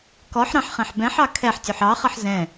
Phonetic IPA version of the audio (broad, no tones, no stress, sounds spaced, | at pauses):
k ɔ ħ ɾ ɑ̃ ħ χ ɛ̃ ħ b ɛ̃ ħ ɑ kʰ ɛ ħ tʲ u ħ ɑ χ ʌ ħ z ɛ̃